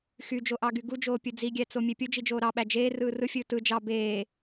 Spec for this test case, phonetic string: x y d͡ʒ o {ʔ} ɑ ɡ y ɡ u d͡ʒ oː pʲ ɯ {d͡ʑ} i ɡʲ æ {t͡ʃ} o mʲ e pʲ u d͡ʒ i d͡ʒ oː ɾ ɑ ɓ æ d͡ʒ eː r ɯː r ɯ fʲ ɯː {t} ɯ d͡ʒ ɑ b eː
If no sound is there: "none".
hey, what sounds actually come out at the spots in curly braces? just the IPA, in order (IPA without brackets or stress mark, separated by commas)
ʔ, d͡z, t͡s, t